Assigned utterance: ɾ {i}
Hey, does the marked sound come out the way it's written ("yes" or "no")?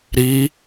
yes